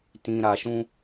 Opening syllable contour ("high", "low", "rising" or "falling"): low